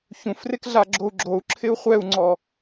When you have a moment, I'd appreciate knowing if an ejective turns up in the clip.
no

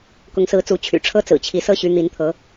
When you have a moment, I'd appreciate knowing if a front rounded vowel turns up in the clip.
yes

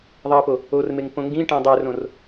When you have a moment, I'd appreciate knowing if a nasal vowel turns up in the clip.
yes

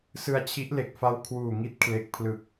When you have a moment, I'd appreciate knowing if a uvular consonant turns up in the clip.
no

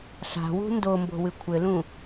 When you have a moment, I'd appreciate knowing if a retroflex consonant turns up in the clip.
no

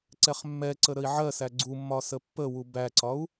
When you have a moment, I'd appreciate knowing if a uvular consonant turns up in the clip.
yes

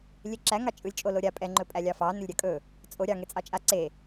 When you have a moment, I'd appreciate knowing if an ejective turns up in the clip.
yes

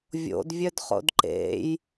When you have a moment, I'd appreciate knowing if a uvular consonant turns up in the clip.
yes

